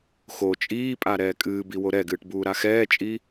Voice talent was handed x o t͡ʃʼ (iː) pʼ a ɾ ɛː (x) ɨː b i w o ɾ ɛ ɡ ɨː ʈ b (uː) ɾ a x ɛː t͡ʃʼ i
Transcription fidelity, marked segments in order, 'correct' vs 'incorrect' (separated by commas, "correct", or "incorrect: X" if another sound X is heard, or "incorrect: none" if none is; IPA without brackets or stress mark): correct, incorrect: kʼ, correct